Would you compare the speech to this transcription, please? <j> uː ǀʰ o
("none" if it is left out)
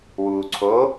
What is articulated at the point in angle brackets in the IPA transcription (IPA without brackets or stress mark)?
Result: w